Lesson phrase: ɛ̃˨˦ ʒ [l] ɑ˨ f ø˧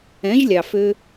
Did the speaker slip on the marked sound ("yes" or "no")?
yes